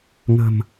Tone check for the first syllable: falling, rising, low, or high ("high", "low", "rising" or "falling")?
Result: low